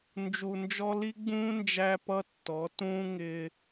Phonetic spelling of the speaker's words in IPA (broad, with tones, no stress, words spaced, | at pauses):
nd͡ʒu˧nd͡ʒɔ˥ li˥ɡ͡bũː˥ nd͡ʒæ˥pʌ˥ tːɔ˩˥ tũː˥ ŋɪː˧